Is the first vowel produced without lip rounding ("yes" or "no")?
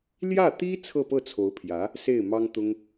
yes